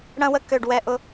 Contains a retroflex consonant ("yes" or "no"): yes